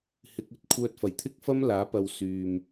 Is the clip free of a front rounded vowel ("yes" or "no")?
no